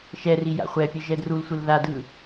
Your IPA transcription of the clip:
ʃ ɛ r i j a̰ χʷ ɛ pʲ ə ʒ ɛ d r u l sʷ ɯ l ð a d ɯ

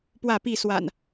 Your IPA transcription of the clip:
p w ä˥˨ p i˥˨ s w a̰˨˩ n

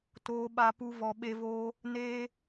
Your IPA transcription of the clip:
t oː˧ ɓ a˧ p u˦ v ɔ˧ ɓ e˦ v oː˦ | n eː˦

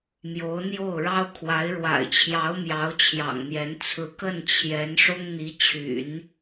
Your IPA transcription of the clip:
m j o˧˥ ʊ̯ n̪ j o˥˩ ʊ̯ ɻ ɑ˥ ʊ̯ kʰ w a˧˥ ɪ̯ ɻ w a̰˨˩ ɪ̯ t͡ɕʰ j ɑ˧˥ ʊ̯ m j ɑ˧˥ ʊ̯ t͡ɕʰ j ɑ̰˨˩ ŋ n̪ j ɛ˧˥ n t͡sʰ ɹ̩˧˥ k ə˥˩ n t͡ɕʰ j ɛ˧˥ n ʂ ʊ˥ ŋ n̪ i˧˥ t͡ɕʰ y̰˨˩˦ n

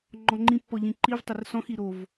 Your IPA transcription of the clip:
ŋ͡ǃ ɔ̃ ŋ͡ǃ ĩ pː ɔ ʎ ĩ ǃ i v tˤ ɪ r s ɔ̃ x i ɾ o v

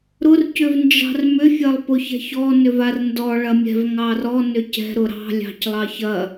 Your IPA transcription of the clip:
ɾ ʊ r c ʏ v n d͡ʒ ɑ̤ r m ʏ fʲ ɐ lˠ p ʊ ç ɛ̤ ç ɔ n ʏ v a r n d ɔ ɭ ɐ mʲ ɛ̤ v ŋ ɑ r ɔ n ʏ c ɛ̤ ɾ ʊ ɾ ɑ̤ lʲ ɑ̤ c lˠ ɑ ç ɐ

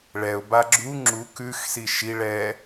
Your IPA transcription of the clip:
ɭ ɛ ʊ̯ b a ɡ͡ǁ u ŋ͡ǁ u k ʉ x s i ʃ i ɭ ɛ

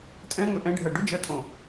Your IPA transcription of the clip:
tʼ ɛ̃ ŋ ɵ ʔ ɛ̃ ɖʱ ɜ ɖ ʊ d͡ʒ ɜ tʼ õ

